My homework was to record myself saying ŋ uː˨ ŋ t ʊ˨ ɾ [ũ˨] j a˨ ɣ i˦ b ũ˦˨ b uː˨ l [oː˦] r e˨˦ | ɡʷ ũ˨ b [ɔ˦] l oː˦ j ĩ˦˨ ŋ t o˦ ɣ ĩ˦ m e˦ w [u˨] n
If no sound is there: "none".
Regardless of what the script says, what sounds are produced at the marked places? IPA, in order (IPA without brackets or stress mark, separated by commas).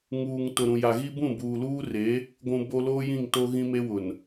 ũ˨, uː˦, o˦, ʊ˨